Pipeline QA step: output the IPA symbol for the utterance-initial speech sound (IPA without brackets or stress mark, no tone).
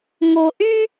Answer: ŋ